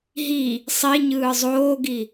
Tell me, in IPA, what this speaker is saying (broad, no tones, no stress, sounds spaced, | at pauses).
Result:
ɦ i | sˤ i ɲ ɯː zˤ oː ɡ i